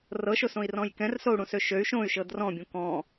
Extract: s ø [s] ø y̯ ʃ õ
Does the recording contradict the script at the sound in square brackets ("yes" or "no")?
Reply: yes